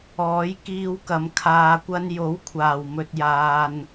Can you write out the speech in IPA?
ɔː˨˥jkiː˧wkɐ˨m kʰaː˧kʷɐ˥n jo˨˥wkʷʰaː˨˩w mɵ˧t̚jaː˧n

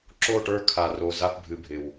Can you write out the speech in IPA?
ǁo˦˨ʈə˞˦˨ kʰa˨ro˨ za˦pbʱɨ˨bʱɪ˨w

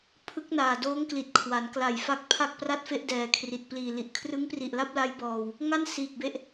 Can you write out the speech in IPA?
pʰɯ˦˥k̚naː˨˩doː˦˥ŋ kli˨˩t̚kʰwa˩˦nkla˨˩jfa˦˥k̚ pʰa˥˩k̚pra˥˩t̚fe˥˩ʔdɛː˨˩ kʰri˨˩t̚ pliː˨˩li˨˩ʔ kʰrɯ˦˥ŋpri˨˩ʔla˥˩p̚la˦˥j bɔː˧w | ŋa˥˩n siː˨˩k̚be˦˥ʔ

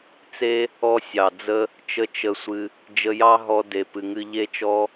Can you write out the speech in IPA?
t͡se˦ | ɔ˦sʲɑ˨d͡zə˦ | t͡ʃə˦t͡ʃə˧sʷɨ˧ | d͡ʒə˧jɑ˦ɦɔ˧ de˨pɨ˨ŋɨ˧ ʎe˧t͡ʃɔ˧

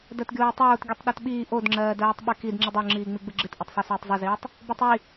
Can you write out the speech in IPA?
dɜtɡʲoːtˤoːt ɡʲɯtˤɗɔtɓiː ʔodŋ͡ǁɜːdɜːtˤ ɓɨkid ŋ͡ǁɨdˤoŋ͡ǁiːŋ͡mi ɡ͡bɯɡ͡ǁɨtʔotˤsˤo soːtˤzˤɨziːtˤ | botˤi

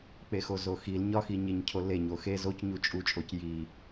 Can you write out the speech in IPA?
k͡pexozoxil ɲɒxiɲeɲ cʰole ɲoxe zoc ɲut͡ʃʼut͡ʃʼoc ji

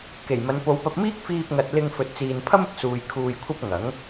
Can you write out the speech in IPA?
ke˨˩jmɐ˨˧n po˨˧wpɐ˧p̚miː˥k̚ fiː˧p̚ŋɐ˨t̚lɪ˧ŋ fɵ˨t̚t͡siː˨n pʰɐ˥mɪ˨k̚ suː˨j kʰuː˧jkʷʰɐ˥p̚ ŋɐ˨˥ŋ

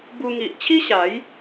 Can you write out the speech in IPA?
bu˧ŋi˨ʔ t͡ɕʰi˦ɕa˨˦j

